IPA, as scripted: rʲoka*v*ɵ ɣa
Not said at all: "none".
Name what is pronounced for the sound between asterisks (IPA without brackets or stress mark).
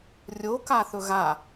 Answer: θ